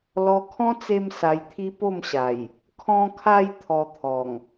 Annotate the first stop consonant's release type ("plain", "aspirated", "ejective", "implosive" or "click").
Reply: aspirated